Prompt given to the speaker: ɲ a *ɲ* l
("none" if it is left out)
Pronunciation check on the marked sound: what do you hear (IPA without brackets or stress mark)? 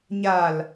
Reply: none